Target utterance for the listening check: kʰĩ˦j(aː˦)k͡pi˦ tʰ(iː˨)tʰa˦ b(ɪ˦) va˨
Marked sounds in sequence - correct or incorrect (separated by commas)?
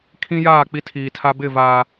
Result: incorrect, correct, incorrect